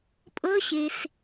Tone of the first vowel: rising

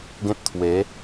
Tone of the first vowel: high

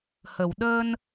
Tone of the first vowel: low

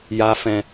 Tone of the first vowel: low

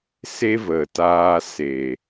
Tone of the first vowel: high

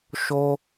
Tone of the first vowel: high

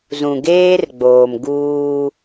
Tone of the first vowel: low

